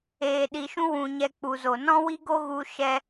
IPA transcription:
eː˨ ɗ i˨ ʃ ũ˧ w ũ˧ ɲ ɛ˧ k͡p u˨ z o˨ n ɔ̃˦ w i˦ ɡ o˦ ɣ u˧ ʃ ɛ˧

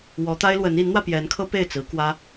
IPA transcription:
w ɔ˧˥ t̪ a˥ ɪ̯ l w ə˧˥ n i˧˥ n n̪ w ä˧ p j ɛ˧˥ n kʰ ɤ˥ p e˥˩ ɪ̯ t͡s ɹ̩˧˥ k w ä˥

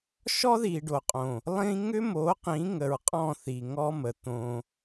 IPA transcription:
ʃ ɔ˦ ð i˨ ɖ o˨ qʼ õ˨ | lˠ ĩ˦ ŋ ʏ˦ m o˨˦ q ĩ˨˦ ŋ ə˨ ɹ qʼ ɔ̃˦˨ θ i˨ ŋ ɔ˦ m ə˨ t̪ õ˦

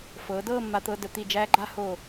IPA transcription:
f ɤː˩˧ d ɤː˥˧ mː a˧ t̪ ɤ˧ d ə˩˧ t̪ i˧˩ d͡ʒ æː˥ ɡ͡ǃ a˥ h o˧˩

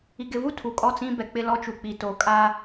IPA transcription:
i˨ ɡ ɪ˨ v u˦ tʰ u˨ kʼ ɔ˦˨ t͡s ĩ˦ b ɛ˨ k͡p ɪ˦ l ɔ˦ t͡ʃ u˨ k͡p i˨ t o˨˦ kʼ a˦

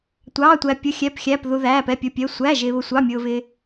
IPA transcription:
tʷ ɑː˧˥˧ tʷ æ˧ pʲ ʊ˧˥˧ xʲ ɛ˧˥˧ p xʲ æ˧˥˧ p ð u˧ ð æː˧˥˧ p ɛ˧˥˧ pʲ ʊ˧˥˧ pʲ ɛ˧˥˧ sʷ æ˧˥˧ ʒ ɪː˧ β ʊ˧ sʷ ɑ˧˥˧ mʲ ʊː˧ v ɪː˧

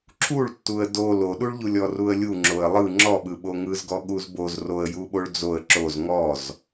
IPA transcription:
ǁʰ u ɭ tː u ə̯ d o l o ɗ u ɭ ʎ u lʲ ɔ r u ə̯ lʲ u ŋ͡ǁ o ə̯ lˠ ɯ ŋ͡ǁ ɔ ɓ ɯ ɓ o ŋ ɯ z ɡ ɔ ɠ u z b o z r o ə̯ j u ɓ o ɭ d͡z o ə̯ ǁ o z ŋ ɔ z

